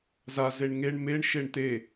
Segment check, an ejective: absent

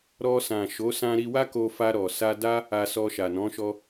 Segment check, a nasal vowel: present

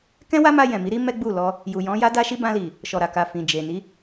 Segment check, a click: absent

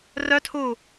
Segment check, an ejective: absent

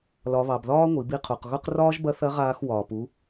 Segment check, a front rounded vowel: absent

